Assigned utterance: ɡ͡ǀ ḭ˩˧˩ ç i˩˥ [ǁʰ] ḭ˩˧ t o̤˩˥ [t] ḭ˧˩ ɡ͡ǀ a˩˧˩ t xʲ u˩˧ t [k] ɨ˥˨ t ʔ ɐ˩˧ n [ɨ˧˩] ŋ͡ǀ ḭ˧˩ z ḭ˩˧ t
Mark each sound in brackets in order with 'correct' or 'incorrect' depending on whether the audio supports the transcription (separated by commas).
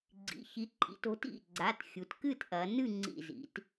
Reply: incorrect, correct, correct, incorrect